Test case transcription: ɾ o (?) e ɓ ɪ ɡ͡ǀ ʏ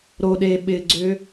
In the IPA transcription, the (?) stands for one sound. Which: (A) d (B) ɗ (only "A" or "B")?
B